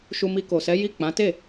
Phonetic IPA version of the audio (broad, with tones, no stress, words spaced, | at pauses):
ʃu˧mi˧ ko˨sɛ˨˦ ji˦˨k͡pã˨˦ te˦˨